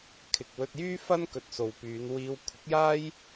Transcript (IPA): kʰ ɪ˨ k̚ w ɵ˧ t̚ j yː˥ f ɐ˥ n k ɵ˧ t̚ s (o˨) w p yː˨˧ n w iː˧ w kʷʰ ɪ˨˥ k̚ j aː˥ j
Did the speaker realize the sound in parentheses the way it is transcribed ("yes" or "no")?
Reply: yes